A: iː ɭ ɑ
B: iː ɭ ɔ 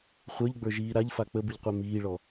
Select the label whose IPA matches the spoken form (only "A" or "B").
B